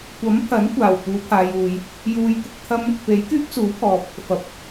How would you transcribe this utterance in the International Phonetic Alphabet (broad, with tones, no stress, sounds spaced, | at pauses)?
kʷ ɐ˨˥ m pʰ ɐ˨˥ n kʷ aː˨˩ w p uː˨˧ pʰ aː˨ j uː˨ j | j uː˧ j t̪ ʊ˧ k̚ t̪ʰ ɐ˥ m | p e˨˥ j k yː˥ p̚ s uː˨˥ pʰ ɔː˨ p̚ | f ɐ˨ p̚